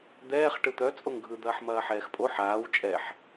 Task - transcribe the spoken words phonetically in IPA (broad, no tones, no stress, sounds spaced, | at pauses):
d̪ ɛː χ ʈ ɯ t̪ œ t͡sʼ o ŋ ɡʱ ɯ d̪ ɐː ħ m ɐː ħ ɛː x pʼ o ħ aː w t͡ʃʼ ɛ ħ